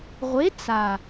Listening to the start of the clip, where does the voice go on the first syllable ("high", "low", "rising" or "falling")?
rising